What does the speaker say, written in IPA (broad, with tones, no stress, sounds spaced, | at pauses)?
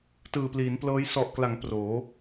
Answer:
t ɯː˨˩ p l iː˩˦ n p l ɤː˦˥ j s ɔ˨˩ ʔ k l a˩˦ ŋ p r oː˩˦